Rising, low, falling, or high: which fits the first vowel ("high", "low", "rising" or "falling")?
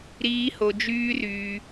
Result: high